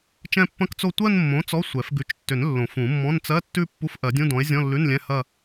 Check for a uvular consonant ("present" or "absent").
absent